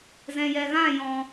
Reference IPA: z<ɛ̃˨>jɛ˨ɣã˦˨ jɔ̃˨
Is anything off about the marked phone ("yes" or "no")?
no